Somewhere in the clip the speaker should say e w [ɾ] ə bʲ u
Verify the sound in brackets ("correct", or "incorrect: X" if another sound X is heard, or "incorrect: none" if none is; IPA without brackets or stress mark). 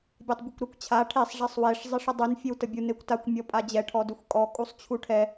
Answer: incorrect: t